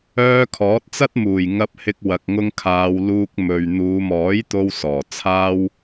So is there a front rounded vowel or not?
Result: yes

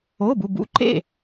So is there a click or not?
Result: yes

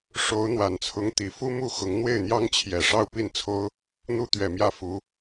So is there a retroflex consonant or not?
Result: yes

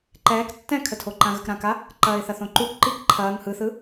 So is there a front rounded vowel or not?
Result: no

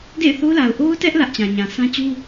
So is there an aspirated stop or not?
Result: no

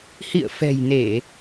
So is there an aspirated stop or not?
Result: no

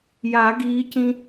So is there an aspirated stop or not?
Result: no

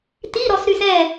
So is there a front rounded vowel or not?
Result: yes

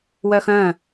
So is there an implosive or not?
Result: no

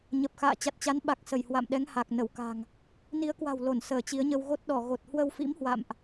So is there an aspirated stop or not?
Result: no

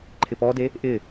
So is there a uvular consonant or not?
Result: no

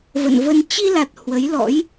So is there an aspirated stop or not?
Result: no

